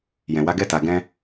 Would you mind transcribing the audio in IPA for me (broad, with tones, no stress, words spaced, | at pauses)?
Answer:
jɛ̃˨wa˨˦ɡɛ˦˨ ta˨ɡɛ̃˧